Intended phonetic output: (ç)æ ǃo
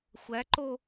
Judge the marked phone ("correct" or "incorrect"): incorrect